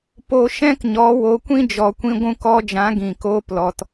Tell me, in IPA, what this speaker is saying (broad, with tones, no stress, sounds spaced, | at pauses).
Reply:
p o˦ ʃ ɛ̃˦ k ɲ ɔ˨˦ w o˨˦ kʷ ĩ˦ d͡ʒ ɔ˧ kʷ ĩ˦ ɡʷ ũ˧ k ɔ˧ d͡ʒ ã˨˦ ɡ ĩ˨ k oː˧ p l ɔ˨ t